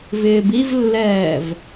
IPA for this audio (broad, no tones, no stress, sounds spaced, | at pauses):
v ɪː b i v lː ɛː v